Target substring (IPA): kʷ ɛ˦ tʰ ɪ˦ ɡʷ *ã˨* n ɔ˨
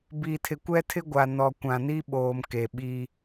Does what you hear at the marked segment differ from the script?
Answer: yes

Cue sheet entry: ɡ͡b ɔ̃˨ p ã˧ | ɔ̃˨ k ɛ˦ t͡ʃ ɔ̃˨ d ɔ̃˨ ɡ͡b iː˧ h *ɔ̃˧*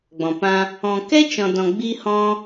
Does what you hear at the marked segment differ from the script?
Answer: no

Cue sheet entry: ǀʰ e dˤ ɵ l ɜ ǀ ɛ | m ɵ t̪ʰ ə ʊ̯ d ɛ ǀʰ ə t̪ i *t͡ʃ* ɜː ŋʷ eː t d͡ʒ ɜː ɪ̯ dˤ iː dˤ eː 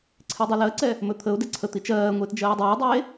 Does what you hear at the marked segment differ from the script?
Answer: no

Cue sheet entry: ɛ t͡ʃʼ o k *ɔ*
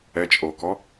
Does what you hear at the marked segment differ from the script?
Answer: no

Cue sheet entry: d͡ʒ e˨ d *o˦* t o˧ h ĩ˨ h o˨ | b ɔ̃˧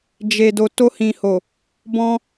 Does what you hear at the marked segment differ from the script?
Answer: yes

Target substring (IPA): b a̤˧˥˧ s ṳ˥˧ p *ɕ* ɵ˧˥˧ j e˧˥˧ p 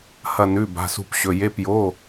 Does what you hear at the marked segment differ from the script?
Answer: no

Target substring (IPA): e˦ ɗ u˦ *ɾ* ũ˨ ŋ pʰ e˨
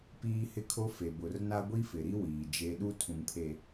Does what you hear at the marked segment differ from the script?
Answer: yes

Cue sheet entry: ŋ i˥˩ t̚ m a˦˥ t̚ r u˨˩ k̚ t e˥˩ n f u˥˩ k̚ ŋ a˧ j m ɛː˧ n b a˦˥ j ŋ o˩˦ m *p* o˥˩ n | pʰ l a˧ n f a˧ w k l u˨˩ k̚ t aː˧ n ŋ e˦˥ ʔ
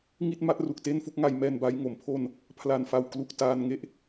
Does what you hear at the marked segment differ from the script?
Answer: yes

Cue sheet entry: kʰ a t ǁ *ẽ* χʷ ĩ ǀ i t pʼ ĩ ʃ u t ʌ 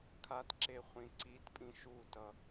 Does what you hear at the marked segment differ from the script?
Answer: yes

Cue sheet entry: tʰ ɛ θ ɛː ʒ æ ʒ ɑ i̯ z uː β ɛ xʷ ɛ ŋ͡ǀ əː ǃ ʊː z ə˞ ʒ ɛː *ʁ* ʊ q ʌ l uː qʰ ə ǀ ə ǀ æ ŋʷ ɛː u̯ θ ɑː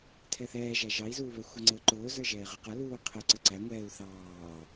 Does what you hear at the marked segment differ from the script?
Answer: no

